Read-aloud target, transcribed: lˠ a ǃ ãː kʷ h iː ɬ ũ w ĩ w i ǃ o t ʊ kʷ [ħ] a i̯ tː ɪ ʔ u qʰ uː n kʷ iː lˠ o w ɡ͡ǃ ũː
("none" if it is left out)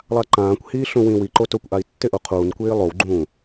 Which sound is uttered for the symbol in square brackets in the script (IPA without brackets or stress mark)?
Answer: ʔ